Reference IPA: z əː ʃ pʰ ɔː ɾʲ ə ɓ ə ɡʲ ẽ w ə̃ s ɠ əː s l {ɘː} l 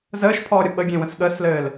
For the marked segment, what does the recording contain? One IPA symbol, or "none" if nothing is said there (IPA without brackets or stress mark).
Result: ɘː